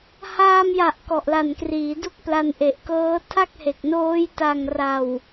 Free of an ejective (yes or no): yes